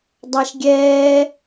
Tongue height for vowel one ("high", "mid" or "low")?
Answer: low